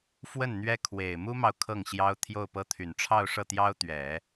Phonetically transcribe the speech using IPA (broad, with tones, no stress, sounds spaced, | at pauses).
f w ə˥˩ n n̪ ɥ ɛ˥ kʰ w e˨˩ ɪ̯ m u˥ m ɑ˨ ʊ̯ kʰ ɤ˥˩ ŋ ɕ j ɑ˥ ʊ̯ t̪ʰ j o˥˩ ʊ̯ p ɤ˥ t̪ʰ y˨˩ n ʈ͡ʂʰ ɑ˥˧ ʊ̯ ʂ ɤ˥˩ t̪ j ɑ˥ ʊ̯ t̪ ɥ ɛ˨˩˦